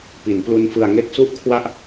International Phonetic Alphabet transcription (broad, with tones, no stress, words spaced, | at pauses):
pi˩˦nplu˦˥nfɯ˧a̯ŋe˥˩k̚ su˥˩ʔkʰwa˥˩ʔ